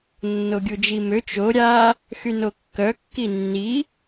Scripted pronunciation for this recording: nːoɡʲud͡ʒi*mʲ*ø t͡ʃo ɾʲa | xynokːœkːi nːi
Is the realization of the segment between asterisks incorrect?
yes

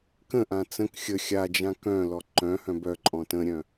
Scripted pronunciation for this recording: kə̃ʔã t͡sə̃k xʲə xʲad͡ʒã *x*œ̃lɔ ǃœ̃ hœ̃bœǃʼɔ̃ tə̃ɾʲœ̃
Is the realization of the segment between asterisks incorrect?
yes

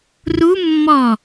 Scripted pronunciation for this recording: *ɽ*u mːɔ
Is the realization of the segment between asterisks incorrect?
yes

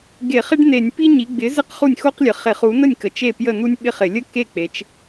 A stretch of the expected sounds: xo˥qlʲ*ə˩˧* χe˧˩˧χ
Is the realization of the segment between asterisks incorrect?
no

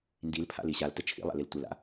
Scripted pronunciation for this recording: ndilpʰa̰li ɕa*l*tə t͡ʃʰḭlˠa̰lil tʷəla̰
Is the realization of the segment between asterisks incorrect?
no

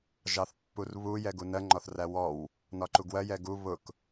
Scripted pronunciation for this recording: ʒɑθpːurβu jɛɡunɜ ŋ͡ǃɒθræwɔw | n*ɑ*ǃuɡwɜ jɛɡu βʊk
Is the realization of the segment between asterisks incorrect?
yes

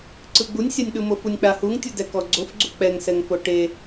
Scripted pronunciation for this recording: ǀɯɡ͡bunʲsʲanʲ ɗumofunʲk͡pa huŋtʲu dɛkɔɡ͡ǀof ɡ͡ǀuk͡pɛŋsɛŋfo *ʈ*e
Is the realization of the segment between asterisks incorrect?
no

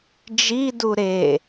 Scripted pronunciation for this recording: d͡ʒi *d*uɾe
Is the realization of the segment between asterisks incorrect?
no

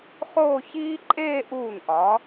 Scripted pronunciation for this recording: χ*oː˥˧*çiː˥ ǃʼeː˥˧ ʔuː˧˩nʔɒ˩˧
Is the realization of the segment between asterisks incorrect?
no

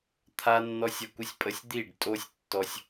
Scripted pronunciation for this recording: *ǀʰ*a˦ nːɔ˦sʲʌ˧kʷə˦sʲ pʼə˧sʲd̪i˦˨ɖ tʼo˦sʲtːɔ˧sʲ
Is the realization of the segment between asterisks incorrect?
yes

